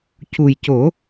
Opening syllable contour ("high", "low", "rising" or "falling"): low